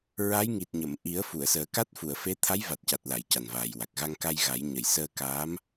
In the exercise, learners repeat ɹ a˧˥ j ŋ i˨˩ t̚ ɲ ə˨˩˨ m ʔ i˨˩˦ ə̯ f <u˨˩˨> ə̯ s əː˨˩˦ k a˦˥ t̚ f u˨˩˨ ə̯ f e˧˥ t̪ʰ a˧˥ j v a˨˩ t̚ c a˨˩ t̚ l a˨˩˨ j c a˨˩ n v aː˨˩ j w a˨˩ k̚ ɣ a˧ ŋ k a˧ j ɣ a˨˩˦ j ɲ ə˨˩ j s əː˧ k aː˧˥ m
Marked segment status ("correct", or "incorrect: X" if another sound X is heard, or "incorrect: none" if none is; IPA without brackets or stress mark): correct